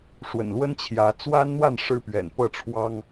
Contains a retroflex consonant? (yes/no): yes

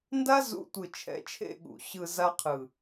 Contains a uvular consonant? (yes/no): yes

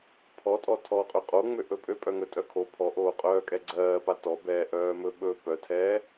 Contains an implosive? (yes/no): yes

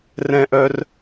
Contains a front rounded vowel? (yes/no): yes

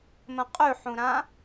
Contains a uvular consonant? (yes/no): yes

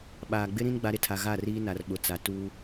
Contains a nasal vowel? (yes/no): yes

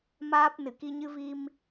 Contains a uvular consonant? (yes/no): no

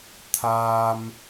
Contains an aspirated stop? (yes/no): yes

